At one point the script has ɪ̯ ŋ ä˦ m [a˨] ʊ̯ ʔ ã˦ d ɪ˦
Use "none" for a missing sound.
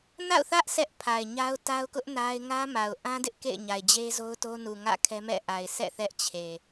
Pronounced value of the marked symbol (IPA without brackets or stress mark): a˨